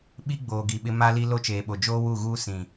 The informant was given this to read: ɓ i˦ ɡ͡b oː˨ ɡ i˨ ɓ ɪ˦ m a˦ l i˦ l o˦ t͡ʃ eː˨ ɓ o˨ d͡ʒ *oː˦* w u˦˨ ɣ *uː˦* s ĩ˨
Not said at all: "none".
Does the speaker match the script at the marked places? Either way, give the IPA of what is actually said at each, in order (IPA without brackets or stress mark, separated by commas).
oː˦, uː˦